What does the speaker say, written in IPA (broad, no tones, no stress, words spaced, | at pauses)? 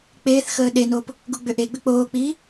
k͡peːθxəː ɗenoːp | ɡuɡ͡bʏʔeɡ͡bʏ k͡poːk͡piː